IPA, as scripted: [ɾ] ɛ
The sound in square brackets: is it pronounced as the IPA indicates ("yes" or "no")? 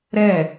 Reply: yes